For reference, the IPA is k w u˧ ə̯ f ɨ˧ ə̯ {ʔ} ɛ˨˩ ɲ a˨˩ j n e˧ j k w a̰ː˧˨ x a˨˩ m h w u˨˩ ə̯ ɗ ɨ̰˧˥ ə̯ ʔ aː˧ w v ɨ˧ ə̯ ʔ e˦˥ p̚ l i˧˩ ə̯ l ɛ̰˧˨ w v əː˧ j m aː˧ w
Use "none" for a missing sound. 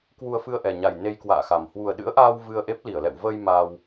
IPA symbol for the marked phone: ʔ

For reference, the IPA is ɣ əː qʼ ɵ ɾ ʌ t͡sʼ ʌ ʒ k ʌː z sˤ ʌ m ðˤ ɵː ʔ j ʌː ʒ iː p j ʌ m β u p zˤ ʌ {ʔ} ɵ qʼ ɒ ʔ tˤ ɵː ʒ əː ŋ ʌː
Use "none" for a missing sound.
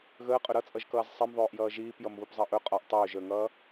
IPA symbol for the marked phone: ʔ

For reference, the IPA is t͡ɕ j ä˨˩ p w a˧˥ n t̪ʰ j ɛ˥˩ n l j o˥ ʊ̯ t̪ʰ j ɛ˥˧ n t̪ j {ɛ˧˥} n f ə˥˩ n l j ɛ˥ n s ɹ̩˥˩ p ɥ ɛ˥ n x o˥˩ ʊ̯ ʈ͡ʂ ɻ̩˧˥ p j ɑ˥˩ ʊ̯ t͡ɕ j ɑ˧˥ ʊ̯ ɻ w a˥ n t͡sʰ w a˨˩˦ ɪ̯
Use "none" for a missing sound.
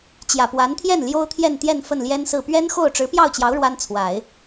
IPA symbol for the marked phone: ɛ˥˧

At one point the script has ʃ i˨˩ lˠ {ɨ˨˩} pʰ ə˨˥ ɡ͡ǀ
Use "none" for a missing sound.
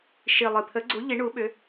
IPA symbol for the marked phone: ɨ˨˩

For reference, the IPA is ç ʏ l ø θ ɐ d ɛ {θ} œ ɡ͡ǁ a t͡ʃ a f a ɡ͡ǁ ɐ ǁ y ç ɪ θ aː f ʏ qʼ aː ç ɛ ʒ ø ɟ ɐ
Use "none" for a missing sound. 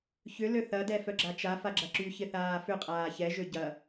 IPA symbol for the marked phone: f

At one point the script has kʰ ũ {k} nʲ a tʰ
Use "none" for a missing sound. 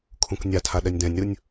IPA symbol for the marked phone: k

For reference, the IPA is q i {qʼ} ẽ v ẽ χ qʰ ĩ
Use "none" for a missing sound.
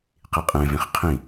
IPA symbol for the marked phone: qʼ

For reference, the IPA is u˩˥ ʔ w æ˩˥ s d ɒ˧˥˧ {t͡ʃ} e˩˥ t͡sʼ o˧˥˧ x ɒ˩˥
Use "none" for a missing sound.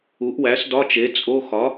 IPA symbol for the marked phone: t͡ʃ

